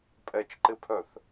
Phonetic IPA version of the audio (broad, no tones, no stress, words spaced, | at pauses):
pʼɛt͡ʃǃɪpʰœθ